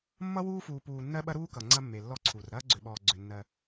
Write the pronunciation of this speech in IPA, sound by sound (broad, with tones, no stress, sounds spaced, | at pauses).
mː ʌ˦ w uː˦ f uː˨ p uː˨ nː ɜ˦ ɓ ɐ˦ ɾ uː˦ k ʌ˨ ŋ͡ǀ ɐ˦ mː e˨ lː ɔ˦ ǀʰ u˨ r ɾ ɐː˦ ɡ͡ǀ ʏ˨ ɓ ɔː˨ ɡ͡ǀ ʏ˨ nː ɜ˦